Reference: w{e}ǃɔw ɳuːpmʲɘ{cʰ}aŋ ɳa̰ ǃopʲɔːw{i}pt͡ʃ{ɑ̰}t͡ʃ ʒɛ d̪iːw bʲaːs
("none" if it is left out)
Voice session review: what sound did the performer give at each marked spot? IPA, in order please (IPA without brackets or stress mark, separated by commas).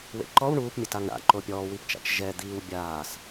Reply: ḛ, t, i, a̰